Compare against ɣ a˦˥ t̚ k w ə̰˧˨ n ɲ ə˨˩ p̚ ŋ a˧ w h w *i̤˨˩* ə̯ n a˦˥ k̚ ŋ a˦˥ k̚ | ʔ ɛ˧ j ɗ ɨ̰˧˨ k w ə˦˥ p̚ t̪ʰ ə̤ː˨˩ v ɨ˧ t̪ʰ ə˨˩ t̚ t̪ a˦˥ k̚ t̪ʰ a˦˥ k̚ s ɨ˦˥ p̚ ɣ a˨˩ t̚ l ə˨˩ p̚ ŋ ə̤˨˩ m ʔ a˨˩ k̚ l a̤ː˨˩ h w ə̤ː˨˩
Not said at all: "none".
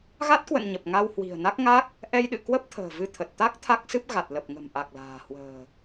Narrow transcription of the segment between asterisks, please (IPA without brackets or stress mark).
i̤˨˩